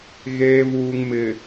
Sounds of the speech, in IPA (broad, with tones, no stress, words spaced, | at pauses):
ɣeː˨vuː˨ŋ mɪ˨